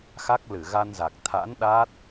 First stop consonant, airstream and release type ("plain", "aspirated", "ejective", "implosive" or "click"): plain